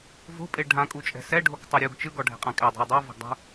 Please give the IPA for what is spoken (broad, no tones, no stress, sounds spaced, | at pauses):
v o̤ pʼ e ɖʱ ã kʼ u t͡ʃʼ ɛ̤ s ɛ ɖʱ o k tˤ ɤ ɾʲ u ɡ t͡ʃ ɯ ɡ ɔ ɖʱ ɛ̤ qʼ ã kʼ ɛ dˤ o̤ ɐ̯ dˤ a v o̤ ɡ dˤ ṳ